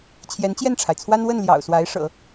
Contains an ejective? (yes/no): no